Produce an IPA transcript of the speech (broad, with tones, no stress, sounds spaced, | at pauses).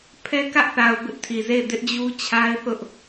pʰ ɛ˦ k ä˦ ʔ θ a˨ ʊ̯ b ɪ˦ ʔ tʰ i˨ z e˦˨ ɪ̯ d ɪ˦ ʔ d͡ʑ u˦ t͡ɕʰ a˦ ɪ̯ θ ʊ˦ ʔ